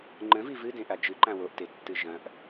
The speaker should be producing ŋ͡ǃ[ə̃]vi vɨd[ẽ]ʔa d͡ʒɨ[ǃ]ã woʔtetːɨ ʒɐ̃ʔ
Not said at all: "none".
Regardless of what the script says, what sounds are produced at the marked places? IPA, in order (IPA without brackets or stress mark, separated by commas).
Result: ə̃, ẽ, ǃ